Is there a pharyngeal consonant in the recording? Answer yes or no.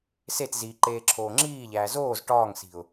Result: no